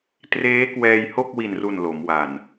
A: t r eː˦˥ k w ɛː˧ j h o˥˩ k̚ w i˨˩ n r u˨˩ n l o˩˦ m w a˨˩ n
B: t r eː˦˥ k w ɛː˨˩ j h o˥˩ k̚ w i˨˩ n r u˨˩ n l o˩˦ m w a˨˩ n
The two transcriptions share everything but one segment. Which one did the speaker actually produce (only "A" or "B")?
A